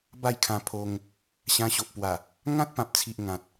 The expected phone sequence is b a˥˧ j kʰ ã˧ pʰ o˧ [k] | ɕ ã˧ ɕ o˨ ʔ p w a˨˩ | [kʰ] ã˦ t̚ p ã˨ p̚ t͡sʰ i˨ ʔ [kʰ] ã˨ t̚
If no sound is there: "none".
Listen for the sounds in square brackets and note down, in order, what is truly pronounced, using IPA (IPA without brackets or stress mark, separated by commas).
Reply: ŋ, ŋ, ŋ